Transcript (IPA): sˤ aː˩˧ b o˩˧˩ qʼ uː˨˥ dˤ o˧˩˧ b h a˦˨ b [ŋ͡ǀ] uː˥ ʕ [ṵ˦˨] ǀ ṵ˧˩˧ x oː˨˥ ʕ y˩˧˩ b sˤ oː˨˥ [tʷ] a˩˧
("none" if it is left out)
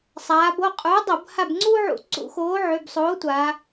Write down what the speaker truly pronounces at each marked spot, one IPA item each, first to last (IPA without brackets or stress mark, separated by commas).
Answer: ŋ͡ǀ, ṵ˧˩˧, tʷ